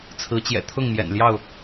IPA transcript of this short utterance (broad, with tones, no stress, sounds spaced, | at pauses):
t͡sʰ ɹ̩˨˦ t͡ɕ j ɛ̰˨˩ t̪ʰ ʊ˥˨ ŋ m j ɛ̰˨˩ n l j ɑ˥˨ ʊ̯